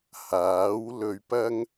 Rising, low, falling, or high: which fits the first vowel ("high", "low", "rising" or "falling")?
rising